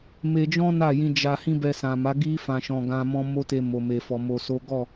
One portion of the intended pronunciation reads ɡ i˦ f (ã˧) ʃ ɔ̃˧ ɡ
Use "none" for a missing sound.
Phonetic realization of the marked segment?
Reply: ã˧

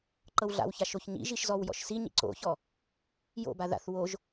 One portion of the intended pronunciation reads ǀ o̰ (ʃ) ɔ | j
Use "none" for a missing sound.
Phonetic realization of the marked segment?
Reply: ç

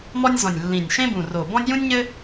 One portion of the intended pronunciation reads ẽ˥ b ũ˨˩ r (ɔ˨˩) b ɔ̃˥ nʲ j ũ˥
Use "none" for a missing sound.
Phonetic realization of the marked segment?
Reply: o˨˩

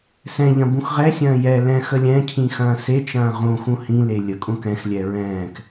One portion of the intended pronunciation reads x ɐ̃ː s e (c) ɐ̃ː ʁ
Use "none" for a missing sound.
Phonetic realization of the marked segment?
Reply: t͡ʃ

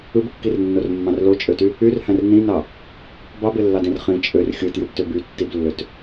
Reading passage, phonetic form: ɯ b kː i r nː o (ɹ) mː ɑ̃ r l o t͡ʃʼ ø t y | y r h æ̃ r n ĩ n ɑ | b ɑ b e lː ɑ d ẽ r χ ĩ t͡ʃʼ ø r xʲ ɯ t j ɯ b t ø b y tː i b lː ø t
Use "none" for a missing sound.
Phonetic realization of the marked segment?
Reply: r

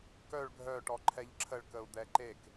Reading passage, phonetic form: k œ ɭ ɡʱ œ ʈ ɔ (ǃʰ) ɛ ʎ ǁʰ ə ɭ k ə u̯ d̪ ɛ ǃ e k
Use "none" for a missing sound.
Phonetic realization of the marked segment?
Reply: ǃʰ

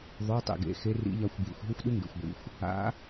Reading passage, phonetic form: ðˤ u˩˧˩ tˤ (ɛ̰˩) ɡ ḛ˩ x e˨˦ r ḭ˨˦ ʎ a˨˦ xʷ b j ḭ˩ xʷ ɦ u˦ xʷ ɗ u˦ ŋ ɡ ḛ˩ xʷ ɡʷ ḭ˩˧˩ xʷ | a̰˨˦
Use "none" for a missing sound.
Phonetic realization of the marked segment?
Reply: ḛ˩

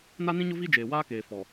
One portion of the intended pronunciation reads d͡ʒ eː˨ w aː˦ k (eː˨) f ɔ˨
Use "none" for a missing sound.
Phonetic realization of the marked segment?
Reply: eː˨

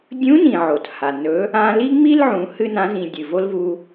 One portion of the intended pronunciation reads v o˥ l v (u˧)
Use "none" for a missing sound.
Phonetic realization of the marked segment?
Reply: u˧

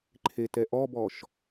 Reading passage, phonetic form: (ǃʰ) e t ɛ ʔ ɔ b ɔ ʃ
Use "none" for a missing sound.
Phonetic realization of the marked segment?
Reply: ǃʰ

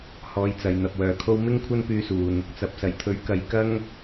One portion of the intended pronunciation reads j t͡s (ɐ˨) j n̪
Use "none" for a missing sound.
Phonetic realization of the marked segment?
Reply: ɐ˨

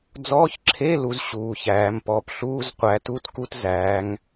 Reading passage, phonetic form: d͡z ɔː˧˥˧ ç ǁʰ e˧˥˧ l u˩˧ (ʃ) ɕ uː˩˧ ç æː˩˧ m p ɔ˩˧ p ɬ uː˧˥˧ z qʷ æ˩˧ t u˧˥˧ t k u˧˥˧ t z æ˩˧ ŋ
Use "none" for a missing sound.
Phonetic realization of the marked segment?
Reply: z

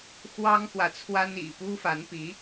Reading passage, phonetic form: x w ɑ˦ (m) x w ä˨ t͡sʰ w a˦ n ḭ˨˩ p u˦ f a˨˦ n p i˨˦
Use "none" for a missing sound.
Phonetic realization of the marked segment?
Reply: ŋ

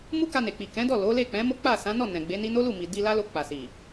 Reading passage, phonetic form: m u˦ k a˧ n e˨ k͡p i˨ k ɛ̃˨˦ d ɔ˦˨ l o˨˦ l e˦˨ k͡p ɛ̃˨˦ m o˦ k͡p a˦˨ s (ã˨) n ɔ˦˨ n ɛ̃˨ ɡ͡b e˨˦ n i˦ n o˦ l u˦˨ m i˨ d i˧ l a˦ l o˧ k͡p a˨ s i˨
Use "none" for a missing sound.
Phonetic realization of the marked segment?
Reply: ã˨˦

